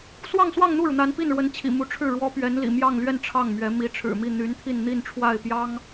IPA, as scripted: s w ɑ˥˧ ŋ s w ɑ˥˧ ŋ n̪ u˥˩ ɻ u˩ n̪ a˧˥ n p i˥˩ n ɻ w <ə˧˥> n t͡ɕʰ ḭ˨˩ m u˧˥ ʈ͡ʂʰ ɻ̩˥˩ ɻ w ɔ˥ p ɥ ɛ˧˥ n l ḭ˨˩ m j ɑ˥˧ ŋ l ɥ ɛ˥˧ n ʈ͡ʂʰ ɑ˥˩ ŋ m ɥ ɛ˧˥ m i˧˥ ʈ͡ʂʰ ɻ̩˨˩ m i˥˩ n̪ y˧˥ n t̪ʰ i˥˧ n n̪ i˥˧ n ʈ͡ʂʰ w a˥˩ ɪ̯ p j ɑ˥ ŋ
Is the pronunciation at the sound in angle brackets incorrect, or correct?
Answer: correct